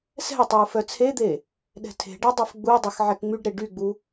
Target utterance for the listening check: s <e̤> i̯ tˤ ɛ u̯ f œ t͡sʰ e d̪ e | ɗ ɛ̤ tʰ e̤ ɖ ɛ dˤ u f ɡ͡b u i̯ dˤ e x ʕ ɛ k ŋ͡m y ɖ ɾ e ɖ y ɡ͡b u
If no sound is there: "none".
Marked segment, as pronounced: ɛ̤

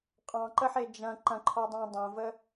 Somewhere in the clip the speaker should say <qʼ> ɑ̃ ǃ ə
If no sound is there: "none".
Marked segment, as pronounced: qʼ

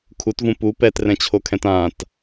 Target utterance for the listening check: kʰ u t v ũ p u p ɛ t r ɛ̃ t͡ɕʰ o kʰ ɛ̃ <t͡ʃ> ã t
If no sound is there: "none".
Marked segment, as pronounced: t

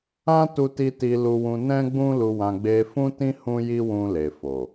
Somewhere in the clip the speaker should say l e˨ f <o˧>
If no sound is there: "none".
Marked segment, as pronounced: o˨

